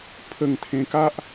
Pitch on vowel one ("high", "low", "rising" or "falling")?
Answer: low